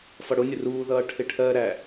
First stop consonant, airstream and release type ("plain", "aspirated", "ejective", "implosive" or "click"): aspirated